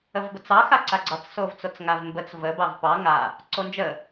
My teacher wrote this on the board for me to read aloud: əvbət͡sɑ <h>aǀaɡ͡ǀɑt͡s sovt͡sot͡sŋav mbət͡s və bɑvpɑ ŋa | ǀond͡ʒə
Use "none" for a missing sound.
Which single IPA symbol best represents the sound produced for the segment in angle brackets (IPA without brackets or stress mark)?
x